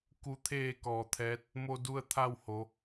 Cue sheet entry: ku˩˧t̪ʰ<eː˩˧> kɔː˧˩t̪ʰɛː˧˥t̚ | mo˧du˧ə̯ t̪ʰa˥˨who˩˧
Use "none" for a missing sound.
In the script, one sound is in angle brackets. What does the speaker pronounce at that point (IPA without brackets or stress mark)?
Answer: eː˧˩